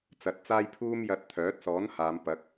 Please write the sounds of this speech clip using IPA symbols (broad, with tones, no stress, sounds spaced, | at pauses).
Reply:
t͡s ɐ˨˥ t̚ t͡s aː˥ j pʰ uː˥ m j ɐ˧ t̚ t̪ʰ œː˨˥ t̚ s ɔː˨˥ n h aː˨˧ m p ɐ˨˥ k̚